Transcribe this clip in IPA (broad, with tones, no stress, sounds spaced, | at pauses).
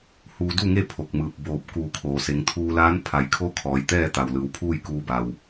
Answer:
h uː˧ d u˥˨ ŋ e˥˨ pʰ o˧˩ k̚ m ɯː˧˩ p̚ b oː˧˩ p̚ k uː˧˩ kʰ oː˩ s e˩˧ ŋ t̪ʰ uː˧ l aː˧˥ n pʰ a˩ j kʰ oː˧˥ kʰ ɔː˩˧ j t̪ ɛː˥˨ t̪ a˩ w l ɯː˩˧ w pʰ uː˥˨ j k uː˧ b a˩ w